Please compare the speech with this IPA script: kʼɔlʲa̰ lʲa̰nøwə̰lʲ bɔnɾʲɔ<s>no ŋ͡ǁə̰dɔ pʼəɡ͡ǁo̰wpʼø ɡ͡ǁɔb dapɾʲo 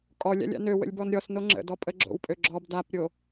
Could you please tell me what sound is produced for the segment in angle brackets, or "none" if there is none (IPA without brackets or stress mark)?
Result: s